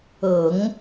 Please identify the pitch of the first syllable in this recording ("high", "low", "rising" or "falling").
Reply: low